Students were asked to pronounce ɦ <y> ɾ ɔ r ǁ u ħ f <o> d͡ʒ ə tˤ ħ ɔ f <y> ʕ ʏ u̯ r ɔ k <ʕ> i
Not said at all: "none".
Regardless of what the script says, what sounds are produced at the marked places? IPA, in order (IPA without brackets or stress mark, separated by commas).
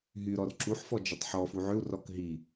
y, ɔ, u, ɦ